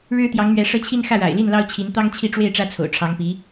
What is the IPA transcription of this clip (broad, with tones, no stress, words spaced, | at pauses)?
ɻɻ̩˥t̪jɑ˧˥ŋmɥɛ˧˥ ʂɤ˥˧t͡ɕʰi˥˧n xä˥˩ɻa̰˨˩ɪ̯ li˥˩nlɑ˥ʊ̯t͡ɕʰi˧˥n t̪ɑ˥ŋt͡ɕʰi˥˧ʈ͡ʂwe˥˩ɪ̯ ʈ͡ʂä˥t͡sʰo̰˨˩ʊ̯ʈ͡ʂʰɑ˧˥ŋpi˧˥